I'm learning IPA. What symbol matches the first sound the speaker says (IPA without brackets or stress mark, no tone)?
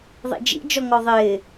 ðˤ